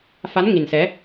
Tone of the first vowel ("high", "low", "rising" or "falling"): rising